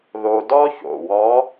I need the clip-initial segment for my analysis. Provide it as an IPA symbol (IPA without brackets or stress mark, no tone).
ð